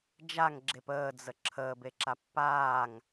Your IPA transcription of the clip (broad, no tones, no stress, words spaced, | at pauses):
d͡ʒaŋɡ͡ǁep əːd͡zə ǁʰəːbeǁa pːaːŋ